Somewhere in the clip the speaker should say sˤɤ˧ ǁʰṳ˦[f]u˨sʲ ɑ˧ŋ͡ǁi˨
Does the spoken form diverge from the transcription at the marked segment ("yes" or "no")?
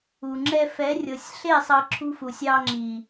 no